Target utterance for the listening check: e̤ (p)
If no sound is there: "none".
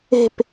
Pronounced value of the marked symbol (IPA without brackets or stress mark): p